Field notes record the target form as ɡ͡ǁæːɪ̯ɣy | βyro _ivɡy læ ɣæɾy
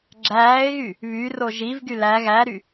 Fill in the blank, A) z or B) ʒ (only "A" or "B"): B